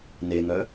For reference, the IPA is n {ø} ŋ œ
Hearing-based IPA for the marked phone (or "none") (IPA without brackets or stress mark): e